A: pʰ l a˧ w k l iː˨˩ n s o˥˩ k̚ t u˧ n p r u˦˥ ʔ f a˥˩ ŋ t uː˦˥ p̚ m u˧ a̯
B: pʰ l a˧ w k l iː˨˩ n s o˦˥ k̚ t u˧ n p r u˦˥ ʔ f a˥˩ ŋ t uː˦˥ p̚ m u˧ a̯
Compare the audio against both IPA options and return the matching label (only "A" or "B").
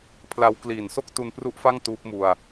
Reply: A